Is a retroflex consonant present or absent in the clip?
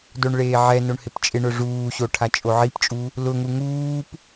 present